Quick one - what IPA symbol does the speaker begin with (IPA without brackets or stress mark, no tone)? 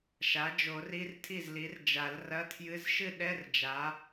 ʃ